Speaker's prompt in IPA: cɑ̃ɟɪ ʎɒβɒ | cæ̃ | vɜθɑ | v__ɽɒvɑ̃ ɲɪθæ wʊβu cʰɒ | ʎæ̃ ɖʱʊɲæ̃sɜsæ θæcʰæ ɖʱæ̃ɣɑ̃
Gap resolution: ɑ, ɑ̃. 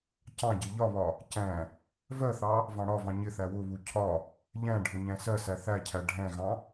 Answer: ɑ̃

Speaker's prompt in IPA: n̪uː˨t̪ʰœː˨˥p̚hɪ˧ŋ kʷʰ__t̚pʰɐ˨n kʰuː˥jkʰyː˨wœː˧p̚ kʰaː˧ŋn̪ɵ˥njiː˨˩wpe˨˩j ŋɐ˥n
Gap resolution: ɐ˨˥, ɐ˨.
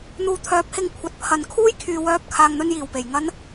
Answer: ɐ˨˥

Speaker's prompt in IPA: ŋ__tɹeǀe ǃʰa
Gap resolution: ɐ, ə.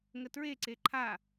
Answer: ə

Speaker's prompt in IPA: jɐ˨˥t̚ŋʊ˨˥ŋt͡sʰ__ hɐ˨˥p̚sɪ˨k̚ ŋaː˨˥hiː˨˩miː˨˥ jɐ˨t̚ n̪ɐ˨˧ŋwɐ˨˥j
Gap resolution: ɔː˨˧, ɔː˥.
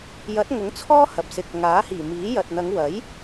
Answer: ɔː˥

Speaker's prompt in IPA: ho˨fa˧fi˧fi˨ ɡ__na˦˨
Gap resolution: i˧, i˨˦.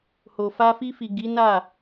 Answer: i˨˦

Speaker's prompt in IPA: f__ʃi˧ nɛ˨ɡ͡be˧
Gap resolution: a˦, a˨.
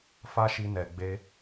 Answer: a˦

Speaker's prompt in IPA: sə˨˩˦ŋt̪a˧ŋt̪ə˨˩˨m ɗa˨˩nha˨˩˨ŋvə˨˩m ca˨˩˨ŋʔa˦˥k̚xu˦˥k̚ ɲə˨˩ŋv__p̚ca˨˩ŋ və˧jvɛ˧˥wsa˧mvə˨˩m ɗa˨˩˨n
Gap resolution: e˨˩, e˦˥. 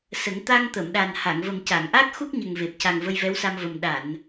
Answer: e˨˩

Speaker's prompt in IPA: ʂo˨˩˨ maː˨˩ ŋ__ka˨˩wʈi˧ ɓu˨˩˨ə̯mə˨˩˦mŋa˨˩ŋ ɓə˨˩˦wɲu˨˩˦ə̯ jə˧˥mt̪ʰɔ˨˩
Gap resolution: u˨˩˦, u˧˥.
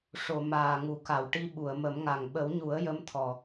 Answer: u˨˩˦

